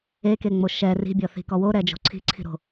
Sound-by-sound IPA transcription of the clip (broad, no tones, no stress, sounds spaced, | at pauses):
e k e ŋ͡m o ʃ ɛ r i̤ bʲ ɔ θ i̤ k ɔ w o ɾ ɛ d͡ʒ o̤ ǀʰ i̤ ǀʰ i̤ ɾ o̤